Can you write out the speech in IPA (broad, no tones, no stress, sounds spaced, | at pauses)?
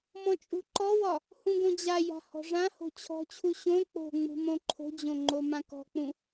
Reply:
m ɔ̃ t͡ʃʼ ṳ ǃ ɔ w ɒ | h ũ ɡ õ d͡ʑ a j a̤ h ɔ̤ ʐ ã h o̤ t͡ɕʰ ɔ̤ t͡ɕʰ u ɕ õ k͡p o̤ ŋ͡m ṳ m õ ǃʰ o̤ d͡ʑ õ ŋ͡ǃ o m ã k ɔ̤ k͡p ũ